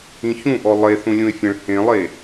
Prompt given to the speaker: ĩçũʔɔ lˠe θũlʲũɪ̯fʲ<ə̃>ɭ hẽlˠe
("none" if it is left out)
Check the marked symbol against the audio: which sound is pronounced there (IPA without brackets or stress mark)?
ə̃